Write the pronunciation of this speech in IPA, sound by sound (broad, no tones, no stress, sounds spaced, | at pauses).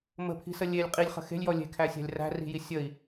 m ə̤ pʰ i̤ s ə lʲ e lʲ qʼ i lʲ χ ə̤ x e̤ lʲ j ɔ lʲ e̤ kʰ æ sʲ æ̤ lʲ r æ̤ r i̤ j i sʲ ə i̯